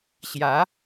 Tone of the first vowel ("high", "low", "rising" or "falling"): rising